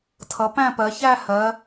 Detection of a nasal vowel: present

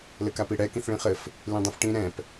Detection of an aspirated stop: absent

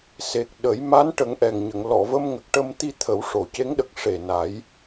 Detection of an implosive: present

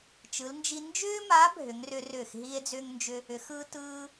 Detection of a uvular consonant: absent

